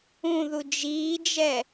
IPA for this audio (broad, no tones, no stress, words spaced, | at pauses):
ũðu d͡ʒiːd͡ʒɛ